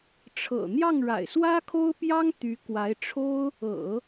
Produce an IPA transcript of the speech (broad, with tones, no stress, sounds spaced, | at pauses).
ʈ͡ʂʰ ɤ̰˨˩ n̪ j ɑ˥˩ ŋ ɻ a̰˨˩ ɪ̯ s w ä˥ kʰ o˥ ʊ̯ p j ɑ˥ ŋ t̪ y˧˥ k w a˧˥ ɪ̯ ʈ͡ʂʰ o˥ ʊ̯ | ɤ̰˨˩˦